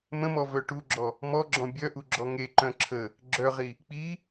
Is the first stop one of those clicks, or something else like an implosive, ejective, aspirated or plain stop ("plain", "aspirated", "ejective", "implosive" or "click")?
plain